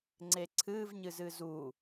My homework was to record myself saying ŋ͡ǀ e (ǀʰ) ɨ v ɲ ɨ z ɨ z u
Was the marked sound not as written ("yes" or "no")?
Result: no